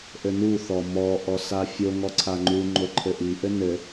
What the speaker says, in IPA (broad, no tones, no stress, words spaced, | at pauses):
ʔɘnu θɔmɔ ʔɔsafʲo ŋɔǀʰaŋ͡ǃu ŋ͡ǃoǃʰɘʔi ʔɘnɘ